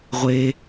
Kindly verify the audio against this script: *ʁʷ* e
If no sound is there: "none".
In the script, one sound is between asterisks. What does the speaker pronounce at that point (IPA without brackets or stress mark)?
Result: ʁʷ